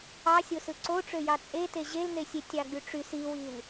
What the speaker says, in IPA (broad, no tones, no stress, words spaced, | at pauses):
ɑsʲosɯ ǀoʈ͡ʂøjɑ t͡sʼete ʑeln̪esʲe tʲɑɡ͡byʈ͡ʂys iwil